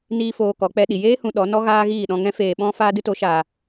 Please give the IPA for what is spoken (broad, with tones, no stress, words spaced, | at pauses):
niː˦foː˧ kɔ˨˦k͡pɛ˧ ɗi˨ jeː˦ hũ˧ɗɔ˨˦ nɔ˦ ɣaː˦ɣiː˦˨ɗɔ̃˧ŋɛ̃˦ feː˨ɓɔ̃˧ faː˦dɨ˦to˨˦ ʃaː˨